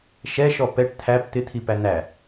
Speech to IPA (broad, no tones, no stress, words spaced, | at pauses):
ʃɛʃɔ pɛʈ t̪ʰæp t̪ɪt̪ʰipæ n̪æ